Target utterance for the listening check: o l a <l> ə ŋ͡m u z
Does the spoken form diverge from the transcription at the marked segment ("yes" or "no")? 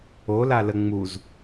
no